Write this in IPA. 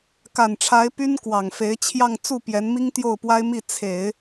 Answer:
ka˨˩nʈ͡ʂʰa˧˥ɪ̯ py˥n kwɑ˨˩ŋ fe˧˥ɪ̯t͡ɕʰjɑ˥˧ŋ t͡su˥˩pjɛ˧˥nmi˥ŋ t̪jo˥˩ʊ̯pwa˥ɪ̯mi˥˩ t͡sʰe˨˩˦ɪ̯

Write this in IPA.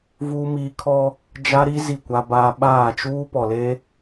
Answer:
vuː˦miː˦ kʰɔ˦ | d͡ʒa˦ɾi˦ zi˦˨kʷa˦baː˦ ɓaː˦˨t͡ʃuː˦ pɔ˨le˦

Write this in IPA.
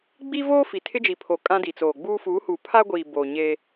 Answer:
ɡ͡bi˦voː˦ fi˨tʰɪ˦d͡ʒi˨pʰo˨ kʼã˦di˨t͡soː˨ɡ͡buː˦ fu˨˦hu˨ pʰa˦ɡʷiː˨ bo˨ɲe˦

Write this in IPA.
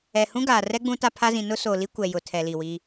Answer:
ɛ˨ hũ˦ɡaː˨rɛ˦ ɡ͡bũ˦ta˦ pʰa˦zĩ˨ nʊ˦so˨li˦ kʷɛ˨jʊ˨ tʰɛ˨li˨wi˦

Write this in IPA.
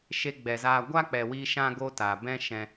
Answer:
ʃe˧ɡ͡bɛ˨zaː˧ ɡʷa˦k͡pɛ˨wiː˧ ʃã˦ɡo˦taː˨ bɛ̃˦ ʃɛ̃˦

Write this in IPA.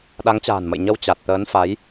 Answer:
ɗa˨˦ŋt͡ɕa̤ː˨˩nmə̰˧˨jɲə˧w t͡ɕa˨˩t̚t̪əː˨˦nfa˨˦j

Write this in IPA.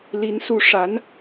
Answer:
li˧˥nsu˧˥ʂa˧˥n

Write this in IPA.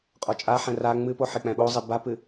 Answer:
qʼɔt͡ʃʼaħɛ̃ ra ŋ͡mɨpo ħek͡pɛ̃ɓozˤe bapɨ

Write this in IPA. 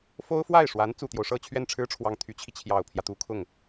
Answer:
fo˥ʊ̯fwa˥˩ɪ̯ʂwa˧˥n t͡su˨˩t̪jo˦ʊ̯ʂɤ˥˧ t͡ɕʰɥɛ˥˩nʈ͡ʂʰɻ̩˥ʈ͡ʂʰwɑ˨˩ŋ t̪ʰy˧˥t͡ɕʰi˧ t͡ɕʰjɑ˨˩ʊ̯pʰjä˦ t̪u˧˥kʰʊ˥˩ŋ

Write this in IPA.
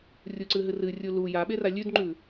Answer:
rʲuǀɨɦɨr ɨrʲu lu jaɓera lʲʉdŋ͡ǃʉ

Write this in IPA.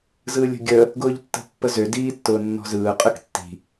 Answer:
zɯːlʲə̤ɡʲə | ɡʊːʎtːə̤pːəzø diːtːʊːnːɔ̤zɯː qʼɯktːi̤

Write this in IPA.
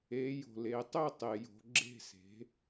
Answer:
e˩˧ jo̤˩le˩˧ tˤø˥˩tˤe˩jo̤˩˧ ɡ͡ǁe̤˥˩se̤˩˥

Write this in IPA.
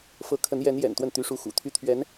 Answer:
fɤ˧˥kʰə˧˥njɛ˧˥n jɛ̰˨˩nt̪wə˥˩n t̪y˧˥ʂu˧˥ xṵ˨˩t̪ʰy˥ t̪ʰɥɛ˧˥n

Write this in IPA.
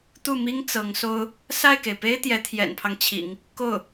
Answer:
t̪u˥˩mi˥ŋ t͡sɤ˧˥ŋso˥ʊ̯ | sa˥˩ɪ̯ke˩ɪ̯pe˥ɪ̯ t̪jɛ˧˥t̪ʰjɛ̰˨˩npʰɑ˦ŋ t͡ɕʰḭ˨˩˦ŋ | ko˥˩ʊ̯

